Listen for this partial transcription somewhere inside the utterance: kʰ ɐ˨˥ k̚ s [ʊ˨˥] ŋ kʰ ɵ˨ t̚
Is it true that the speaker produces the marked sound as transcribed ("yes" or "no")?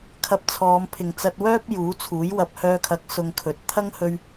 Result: no